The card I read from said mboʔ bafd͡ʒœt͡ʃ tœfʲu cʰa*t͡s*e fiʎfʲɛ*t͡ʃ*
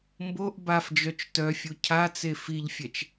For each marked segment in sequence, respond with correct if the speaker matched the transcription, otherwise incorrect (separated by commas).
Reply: correct, correct